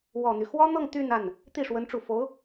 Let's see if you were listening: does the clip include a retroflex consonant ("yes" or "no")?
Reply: yes